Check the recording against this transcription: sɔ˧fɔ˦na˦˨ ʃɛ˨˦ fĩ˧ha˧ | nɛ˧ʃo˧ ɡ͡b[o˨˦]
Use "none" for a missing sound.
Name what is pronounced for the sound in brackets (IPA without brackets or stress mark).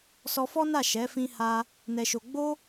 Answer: o˦